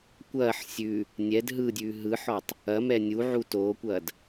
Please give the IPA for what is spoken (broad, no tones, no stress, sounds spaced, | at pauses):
kʷ ɐː ħ sʲ ʉ | nʲ ɛ d ɦ ɯ dʲ ʉː ɦ ɯ ħ ɔ tˤ | ɐ m ɛ nʲ u ʕ u t oː kʷ ɐː d